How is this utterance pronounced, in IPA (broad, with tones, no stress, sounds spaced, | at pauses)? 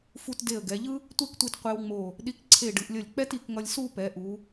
f u˧ t d e˧˩ ə̯ ɡ ɛ˩˧ ʎ ɯ˥ | tʷ e˥˧ k tʷ i˧˩ t qʷ e˧ w ŋ͡m o˧˩ | ɗ i˧ k ǀʰ e˧˩ ɖ ɯ˩˧ ʔ lʲ ʌ˧˩ lʲ k͡p ɛ˥ t i˩˧ k ŋ ʌ˧ lʲ s u˥˧ p ɛ˩˧ ʔ u˩˧